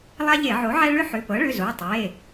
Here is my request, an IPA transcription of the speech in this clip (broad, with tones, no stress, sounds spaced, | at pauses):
lˠ a˦ ʎ e˧˩˧ ʕ o˩˥ ʕ ɛ˦ ɭ ʏ˦ ħ ʏ˩˧˩ p ɤ˩˥ ɭ ʏ˩˧˩ z o˩˧˩ tˤ e˩˧˩